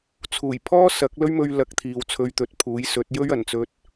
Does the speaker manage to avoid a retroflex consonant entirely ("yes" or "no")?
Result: yes